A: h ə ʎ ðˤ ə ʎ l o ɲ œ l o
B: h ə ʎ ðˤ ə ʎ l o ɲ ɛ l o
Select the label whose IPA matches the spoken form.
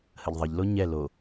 B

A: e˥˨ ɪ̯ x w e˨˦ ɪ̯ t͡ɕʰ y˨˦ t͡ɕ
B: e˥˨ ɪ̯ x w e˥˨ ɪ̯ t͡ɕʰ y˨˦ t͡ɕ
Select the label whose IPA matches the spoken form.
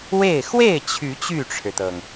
B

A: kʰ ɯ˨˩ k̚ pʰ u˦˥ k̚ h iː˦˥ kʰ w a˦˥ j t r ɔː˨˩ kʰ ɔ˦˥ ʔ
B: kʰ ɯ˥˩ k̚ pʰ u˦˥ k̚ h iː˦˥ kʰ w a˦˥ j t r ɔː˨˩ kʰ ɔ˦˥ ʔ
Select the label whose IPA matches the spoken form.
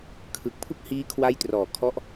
A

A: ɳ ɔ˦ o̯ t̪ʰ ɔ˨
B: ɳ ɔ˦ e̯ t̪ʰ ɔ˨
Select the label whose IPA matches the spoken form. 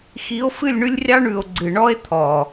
B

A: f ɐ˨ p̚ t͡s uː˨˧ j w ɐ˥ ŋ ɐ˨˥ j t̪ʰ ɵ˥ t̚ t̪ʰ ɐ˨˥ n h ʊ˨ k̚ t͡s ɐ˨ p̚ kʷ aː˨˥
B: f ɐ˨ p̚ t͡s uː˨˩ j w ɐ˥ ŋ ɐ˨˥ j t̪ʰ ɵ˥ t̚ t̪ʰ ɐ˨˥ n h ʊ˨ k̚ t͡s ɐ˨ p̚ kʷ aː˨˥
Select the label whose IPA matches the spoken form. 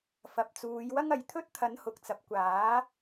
A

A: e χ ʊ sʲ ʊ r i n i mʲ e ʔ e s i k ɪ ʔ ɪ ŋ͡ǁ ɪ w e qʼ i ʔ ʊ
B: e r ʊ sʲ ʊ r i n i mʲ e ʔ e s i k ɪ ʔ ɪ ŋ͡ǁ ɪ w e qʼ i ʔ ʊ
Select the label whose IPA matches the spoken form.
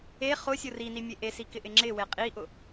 A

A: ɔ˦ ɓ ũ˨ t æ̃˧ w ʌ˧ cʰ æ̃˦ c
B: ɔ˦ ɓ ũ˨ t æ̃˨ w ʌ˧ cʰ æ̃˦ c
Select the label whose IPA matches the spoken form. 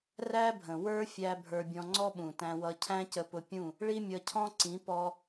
A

